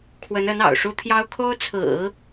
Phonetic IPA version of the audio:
kʰ w ə˧˥ n ə˧˥ n ɑ̰˨˩ ʊ̯ ʂ u˥ t̪ʰ j ɑ˥ ʊ̯ kʰ o˥ ʊ̯ t͡sʰ ɹ̩˨˩˦

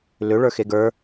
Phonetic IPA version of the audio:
l ʏ ɭ ə˞ x e ɡ ə˞

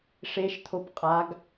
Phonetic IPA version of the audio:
ʂ e ʃ t̪ʰ o p qʼ a ɡ

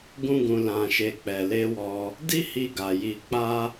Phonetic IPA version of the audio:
ɡ ũ˦ ɡ ũ˧ l ã˧ ʃ e˧ k͡p ɛ˨ l e˧ w ɔ˧ | d i˦ h i˧ ɡ a˨ j i˧ k͡p a˦

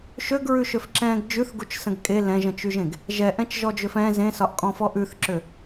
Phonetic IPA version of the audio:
ʃ ø ɡ ɹ ʉ ʃ ø f ǁ ɛ̃ː ɡ d͡ʒ ʉ θ ɡ u t͡ʃ s ə̃ ɡ kʼ e l ɛ̃ ʒ ə̃ t͡ʃ y ʒ ẽ ɡ | ʒ ɛ ʔ ɛ̃ t͡ʃ ʒ ɔ d͡ʒ ø f ɛ̃ z ẽ s ɒ ʔ kʼ ɔ̃ f ɔ ʔ ʉ θ ǁ ø

